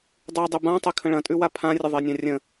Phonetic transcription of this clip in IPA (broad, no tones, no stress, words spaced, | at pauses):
dˤʉ dˤʉbãtˤe kʰə̃ɭɐ̃tʼʉ wapʰãrʲə ðˤenʲãrʲə̃